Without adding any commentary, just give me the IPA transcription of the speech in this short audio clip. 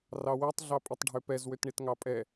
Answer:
r ɑ w ɛ tˤ ɮ ɑ pʼ i tˤ ɖʱ ø p ɛ z w ø t ɳ i t ŋ ɑ pʼ ɛ

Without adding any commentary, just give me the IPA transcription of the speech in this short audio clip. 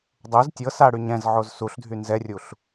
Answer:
dˤ o z tʲ ɤ s a ɽ y ɲ ɛ̃ z ʕ o z s u ɬ dʱ y n z ɛ rʲ u ɬ

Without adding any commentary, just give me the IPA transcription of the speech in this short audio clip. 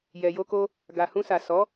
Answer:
j ɛ˨ j o˧ k o˧ | ɡ a˨ h ũ˧ s a˨ s ɔ˨˦

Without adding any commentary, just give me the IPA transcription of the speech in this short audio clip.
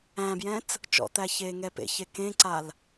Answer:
æ̃ b j ɛ̃ t͡s | t͡ʃ ɔ̰ t̪ æ ç eː ŋ ɛ p ḛ ç e k ẽ ǀ a l

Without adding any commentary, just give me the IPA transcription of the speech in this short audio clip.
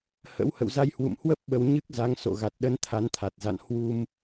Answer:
h ə̰˧˥ w h ə̰˧˨ w z a˧ j h w ṵ˧˨ m h w ə˦˥ p̚ ɓ ə˧ w ɲ ɨ˦˥ k̚ z a˨˦ ŋ s o̰˧˨ ɣ a˨˩ t̚ ɗ ə˨˦ n t̪ʰ a˨˦ n t̪ʰ a˨˩ t̚ z a̰˧˨ n h w u˧ m

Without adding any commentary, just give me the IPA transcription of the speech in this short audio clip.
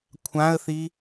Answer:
kʷʰ ã ə̯ θ i

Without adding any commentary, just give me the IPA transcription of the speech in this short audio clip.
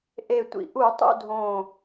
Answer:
ʔ e˨˩ tʷ ḭ˨˩ ʔ u˧˩˧ tˤ ṵ˦˨ dʱ õː˨˩

